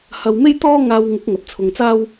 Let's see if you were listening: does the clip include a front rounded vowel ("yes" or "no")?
no